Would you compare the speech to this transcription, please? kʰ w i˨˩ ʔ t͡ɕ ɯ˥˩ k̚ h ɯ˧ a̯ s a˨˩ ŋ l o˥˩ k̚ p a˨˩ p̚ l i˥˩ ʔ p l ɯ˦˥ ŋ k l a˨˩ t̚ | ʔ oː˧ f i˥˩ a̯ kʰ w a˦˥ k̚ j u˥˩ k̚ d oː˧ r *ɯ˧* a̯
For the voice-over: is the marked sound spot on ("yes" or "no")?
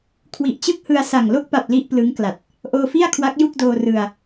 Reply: yes